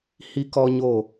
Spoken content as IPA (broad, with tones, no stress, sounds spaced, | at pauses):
h i˦ k ɔ˦ ɲ o˦˨